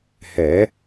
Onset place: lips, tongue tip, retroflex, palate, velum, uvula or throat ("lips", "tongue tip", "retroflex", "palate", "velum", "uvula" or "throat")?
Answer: throat